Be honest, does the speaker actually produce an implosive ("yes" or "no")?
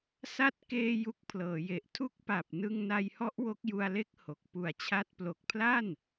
no